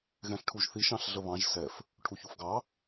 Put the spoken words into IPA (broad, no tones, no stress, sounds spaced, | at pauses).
ɣ ɛ̃ ɬ ʈʰ u ʒ θ i ʃ ɑ̃ ɬ ɮ ə β ɑ̃ ʒ s ɛ f | ʈʰ u ç u f ɡ ɑ